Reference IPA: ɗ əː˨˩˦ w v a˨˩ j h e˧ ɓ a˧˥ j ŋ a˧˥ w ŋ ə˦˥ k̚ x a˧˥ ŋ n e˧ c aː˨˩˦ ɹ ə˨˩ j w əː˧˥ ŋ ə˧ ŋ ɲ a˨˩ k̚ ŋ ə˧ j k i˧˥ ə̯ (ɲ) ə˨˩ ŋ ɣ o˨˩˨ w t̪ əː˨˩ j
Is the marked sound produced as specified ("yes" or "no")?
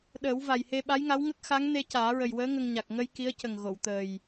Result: no